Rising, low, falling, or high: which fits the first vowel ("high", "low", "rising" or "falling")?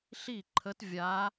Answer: falling